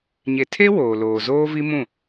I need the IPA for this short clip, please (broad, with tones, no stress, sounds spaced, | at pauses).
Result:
ɲ e˨ tʰ e˦ w oː˨ l oː˨ z oː˦ v i˦ m ũ˦˨